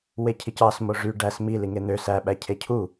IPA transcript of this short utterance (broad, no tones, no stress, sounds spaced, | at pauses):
w e cʰ i c ɑ s m o ʐ y ɖ æ s m i l i ŋ e n̪ ø s æ ɓ æ cʰ e cʰ u